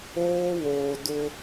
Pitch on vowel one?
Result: high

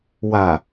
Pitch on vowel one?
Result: low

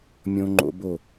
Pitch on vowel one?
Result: high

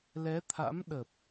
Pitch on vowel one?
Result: rising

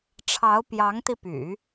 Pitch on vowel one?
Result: rising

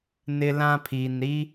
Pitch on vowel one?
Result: high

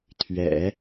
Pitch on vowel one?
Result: low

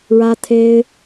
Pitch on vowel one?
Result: high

